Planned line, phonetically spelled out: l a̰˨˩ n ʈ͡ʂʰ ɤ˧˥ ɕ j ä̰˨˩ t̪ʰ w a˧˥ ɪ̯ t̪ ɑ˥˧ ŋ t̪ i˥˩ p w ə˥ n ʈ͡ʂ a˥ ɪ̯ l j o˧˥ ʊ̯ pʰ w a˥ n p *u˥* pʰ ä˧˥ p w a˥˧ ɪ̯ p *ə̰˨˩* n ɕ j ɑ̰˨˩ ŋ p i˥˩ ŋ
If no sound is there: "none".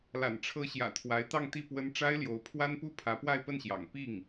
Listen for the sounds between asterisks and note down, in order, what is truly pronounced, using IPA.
u˥, ə˥˩

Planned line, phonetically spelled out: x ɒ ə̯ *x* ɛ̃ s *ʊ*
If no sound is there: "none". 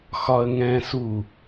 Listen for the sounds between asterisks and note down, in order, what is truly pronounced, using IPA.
ŋ, u

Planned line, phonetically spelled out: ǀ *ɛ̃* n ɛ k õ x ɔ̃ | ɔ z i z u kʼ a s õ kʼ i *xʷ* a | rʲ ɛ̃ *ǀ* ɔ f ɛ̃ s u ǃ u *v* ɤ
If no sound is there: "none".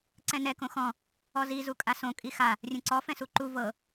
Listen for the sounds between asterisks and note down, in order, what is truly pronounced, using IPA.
ɛ̃, x, ǀ, v

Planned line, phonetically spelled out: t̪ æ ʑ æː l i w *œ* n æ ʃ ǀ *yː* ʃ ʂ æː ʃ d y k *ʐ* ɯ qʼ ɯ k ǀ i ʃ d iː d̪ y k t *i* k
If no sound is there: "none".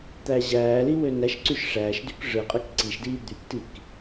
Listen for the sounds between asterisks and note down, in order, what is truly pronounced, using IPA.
ø, y, ʐ, i

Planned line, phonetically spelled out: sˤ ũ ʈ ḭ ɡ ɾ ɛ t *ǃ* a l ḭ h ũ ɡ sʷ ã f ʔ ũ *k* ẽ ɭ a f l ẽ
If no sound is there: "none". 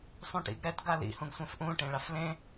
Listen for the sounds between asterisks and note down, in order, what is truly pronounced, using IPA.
ɡ, ʈ

